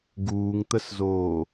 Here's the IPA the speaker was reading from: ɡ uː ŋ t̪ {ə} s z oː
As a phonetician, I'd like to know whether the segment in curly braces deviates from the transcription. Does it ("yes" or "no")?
no